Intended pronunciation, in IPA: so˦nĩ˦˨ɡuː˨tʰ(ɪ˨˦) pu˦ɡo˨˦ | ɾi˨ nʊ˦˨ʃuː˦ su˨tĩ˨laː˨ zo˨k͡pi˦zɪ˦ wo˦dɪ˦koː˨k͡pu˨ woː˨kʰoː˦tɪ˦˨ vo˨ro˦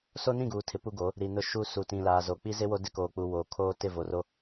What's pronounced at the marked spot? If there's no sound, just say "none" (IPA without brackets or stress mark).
ɪ˨˦